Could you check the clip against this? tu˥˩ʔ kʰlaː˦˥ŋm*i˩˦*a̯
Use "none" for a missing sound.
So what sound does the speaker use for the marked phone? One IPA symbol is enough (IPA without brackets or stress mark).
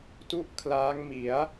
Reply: i˩˦